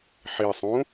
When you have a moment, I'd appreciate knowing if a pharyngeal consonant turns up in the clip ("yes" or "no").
yes